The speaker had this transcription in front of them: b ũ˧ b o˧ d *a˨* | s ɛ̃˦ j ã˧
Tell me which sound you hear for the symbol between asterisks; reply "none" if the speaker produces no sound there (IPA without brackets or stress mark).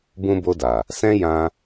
a˨